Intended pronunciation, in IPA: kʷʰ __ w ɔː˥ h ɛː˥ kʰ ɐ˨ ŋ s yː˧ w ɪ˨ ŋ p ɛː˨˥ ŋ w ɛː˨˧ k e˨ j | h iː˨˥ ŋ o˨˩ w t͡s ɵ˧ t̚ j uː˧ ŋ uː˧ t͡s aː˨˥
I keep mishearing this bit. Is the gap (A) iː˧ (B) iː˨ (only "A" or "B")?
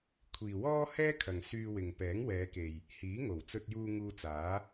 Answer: B